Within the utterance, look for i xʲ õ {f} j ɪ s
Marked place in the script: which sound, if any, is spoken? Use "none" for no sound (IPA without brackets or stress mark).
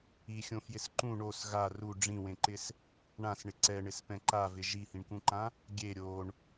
f